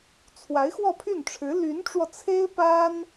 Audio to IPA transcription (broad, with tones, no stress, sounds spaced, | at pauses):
t͡sʰ w a˧˥ ɪ̯ x w ɔ˥˧ pʰ y˥˩ n ʈ͡ʂʰ ɻ̩˧˥ l y˧˥ n ʈ͡ʂ w ɔ˧ t͡sʰ e˥ ɪ̯ p a˥ n